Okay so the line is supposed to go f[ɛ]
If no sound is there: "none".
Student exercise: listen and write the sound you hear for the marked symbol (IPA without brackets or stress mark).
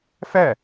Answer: ɛ